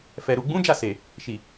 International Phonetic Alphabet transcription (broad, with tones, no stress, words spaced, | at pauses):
fɛ˨ ɾu˨ɡ͡bũ˨˦ d͡ʒa˦˨se˨ | ʃi˨